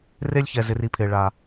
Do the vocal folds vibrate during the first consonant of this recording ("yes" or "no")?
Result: yes